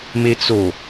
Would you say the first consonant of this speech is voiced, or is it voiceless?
voiced